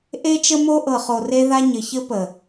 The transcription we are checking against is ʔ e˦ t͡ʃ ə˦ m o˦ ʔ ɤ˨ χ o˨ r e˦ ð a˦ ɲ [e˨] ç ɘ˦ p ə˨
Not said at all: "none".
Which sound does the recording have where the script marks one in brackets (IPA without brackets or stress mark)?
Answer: ɘ˨